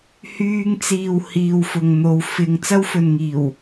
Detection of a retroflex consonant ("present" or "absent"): absent